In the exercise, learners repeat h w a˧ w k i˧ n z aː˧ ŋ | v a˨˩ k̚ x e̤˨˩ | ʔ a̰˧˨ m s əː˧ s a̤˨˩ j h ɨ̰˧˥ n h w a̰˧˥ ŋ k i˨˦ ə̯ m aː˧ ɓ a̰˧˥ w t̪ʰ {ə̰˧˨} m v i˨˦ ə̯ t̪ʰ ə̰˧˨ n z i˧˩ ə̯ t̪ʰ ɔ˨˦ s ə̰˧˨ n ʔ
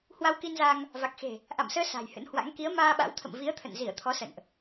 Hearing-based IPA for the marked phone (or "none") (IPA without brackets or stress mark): ə̰˧˨